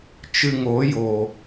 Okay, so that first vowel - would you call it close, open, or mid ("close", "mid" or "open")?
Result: close